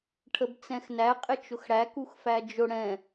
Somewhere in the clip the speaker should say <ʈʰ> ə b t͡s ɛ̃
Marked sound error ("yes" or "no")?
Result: no